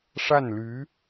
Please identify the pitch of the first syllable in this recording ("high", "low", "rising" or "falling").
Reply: falling